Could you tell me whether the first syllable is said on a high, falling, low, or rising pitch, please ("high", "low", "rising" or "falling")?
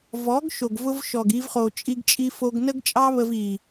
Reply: rising